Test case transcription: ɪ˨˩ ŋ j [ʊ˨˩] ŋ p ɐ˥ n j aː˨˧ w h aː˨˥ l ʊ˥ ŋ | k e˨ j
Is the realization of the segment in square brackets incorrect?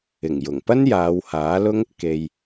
no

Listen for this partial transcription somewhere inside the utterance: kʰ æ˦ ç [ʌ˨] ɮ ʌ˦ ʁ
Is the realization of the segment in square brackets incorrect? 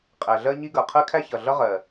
no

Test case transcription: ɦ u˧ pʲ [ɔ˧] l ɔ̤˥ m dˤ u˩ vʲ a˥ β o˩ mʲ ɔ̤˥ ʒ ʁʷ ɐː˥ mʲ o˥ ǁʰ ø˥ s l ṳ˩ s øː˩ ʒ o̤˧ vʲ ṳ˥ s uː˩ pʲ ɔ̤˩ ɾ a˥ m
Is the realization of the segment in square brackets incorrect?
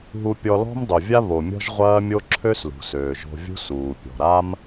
no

